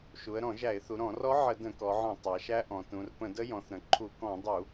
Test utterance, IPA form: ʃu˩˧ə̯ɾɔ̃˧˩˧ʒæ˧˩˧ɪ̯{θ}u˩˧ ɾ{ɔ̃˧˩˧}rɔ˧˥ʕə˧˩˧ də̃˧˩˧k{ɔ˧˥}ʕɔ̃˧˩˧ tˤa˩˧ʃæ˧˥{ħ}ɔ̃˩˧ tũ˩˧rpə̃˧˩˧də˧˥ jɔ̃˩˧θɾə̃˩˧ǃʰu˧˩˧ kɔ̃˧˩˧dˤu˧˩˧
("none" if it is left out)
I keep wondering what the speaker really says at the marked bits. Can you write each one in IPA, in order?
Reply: θ, ɔ̃˧˩˧, ɔ˩˧, ʔ

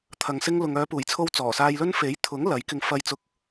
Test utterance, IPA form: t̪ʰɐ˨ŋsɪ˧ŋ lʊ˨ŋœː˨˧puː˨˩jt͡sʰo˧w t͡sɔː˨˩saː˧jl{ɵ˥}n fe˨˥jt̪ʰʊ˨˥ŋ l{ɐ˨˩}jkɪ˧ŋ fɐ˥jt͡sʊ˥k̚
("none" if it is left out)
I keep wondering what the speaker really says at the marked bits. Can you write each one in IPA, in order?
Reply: ɵ˥, ɐ˨˥

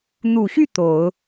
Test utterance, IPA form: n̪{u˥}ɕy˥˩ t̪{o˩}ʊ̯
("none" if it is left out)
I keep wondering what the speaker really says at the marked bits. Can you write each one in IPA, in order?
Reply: u˨˩, o˨˩˦

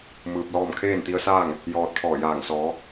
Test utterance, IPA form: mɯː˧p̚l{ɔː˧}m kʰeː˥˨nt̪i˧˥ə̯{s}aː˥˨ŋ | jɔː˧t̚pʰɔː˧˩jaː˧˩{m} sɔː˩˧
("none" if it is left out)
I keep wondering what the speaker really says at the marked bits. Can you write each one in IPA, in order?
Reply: ɔː˥˨, s, ŋ

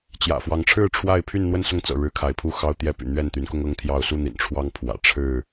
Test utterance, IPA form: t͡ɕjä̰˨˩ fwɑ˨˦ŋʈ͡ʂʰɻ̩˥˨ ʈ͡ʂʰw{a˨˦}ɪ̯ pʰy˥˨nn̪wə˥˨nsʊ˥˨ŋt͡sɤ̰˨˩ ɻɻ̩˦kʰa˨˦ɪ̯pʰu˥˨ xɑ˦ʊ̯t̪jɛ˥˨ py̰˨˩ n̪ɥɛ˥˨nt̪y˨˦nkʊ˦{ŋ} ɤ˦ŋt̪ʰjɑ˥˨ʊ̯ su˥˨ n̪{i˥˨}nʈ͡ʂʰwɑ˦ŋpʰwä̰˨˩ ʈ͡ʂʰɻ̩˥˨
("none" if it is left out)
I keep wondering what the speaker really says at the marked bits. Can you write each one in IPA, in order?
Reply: a˥˨, ŋ, ḭ˨˩

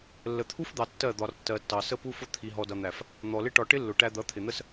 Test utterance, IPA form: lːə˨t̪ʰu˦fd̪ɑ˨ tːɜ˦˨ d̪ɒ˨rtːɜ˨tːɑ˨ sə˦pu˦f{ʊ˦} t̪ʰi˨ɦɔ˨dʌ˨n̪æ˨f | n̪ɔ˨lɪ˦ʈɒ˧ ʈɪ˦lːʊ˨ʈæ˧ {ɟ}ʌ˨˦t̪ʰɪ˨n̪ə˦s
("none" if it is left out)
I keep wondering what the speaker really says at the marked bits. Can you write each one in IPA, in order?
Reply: ʊ˦, d̪

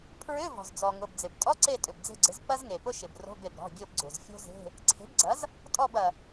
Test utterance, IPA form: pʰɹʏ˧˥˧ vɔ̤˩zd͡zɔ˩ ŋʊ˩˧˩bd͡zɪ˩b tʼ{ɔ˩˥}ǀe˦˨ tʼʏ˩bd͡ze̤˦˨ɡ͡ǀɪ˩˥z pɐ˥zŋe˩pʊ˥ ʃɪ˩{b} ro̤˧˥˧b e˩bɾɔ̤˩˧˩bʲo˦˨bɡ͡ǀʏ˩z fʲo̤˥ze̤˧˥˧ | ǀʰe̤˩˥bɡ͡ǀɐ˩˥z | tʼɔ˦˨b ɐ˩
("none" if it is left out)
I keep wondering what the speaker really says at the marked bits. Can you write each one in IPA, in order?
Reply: ɔ˧˥˧, b

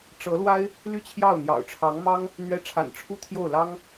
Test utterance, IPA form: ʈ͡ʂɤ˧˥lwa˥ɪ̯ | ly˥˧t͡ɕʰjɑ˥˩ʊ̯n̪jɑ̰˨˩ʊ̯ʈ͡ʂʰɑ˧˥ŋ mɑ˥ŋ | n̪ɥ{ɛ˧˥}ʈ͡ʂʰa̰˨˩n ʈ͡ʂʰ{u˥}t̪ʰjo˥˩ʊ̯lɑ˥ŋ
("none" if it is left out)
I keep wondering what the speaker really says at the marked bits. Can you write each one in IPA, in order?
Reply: ɛ˧˥, u˥

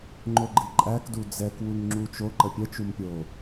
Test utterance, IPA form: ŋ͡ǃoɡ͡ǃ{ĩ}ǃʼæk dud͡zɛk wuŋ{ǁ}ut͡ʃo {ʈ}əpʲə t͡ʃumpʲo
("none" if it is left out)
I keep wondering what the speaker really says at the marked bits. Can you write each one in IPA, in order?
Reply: i, ŋ͡ǁ, ǃ

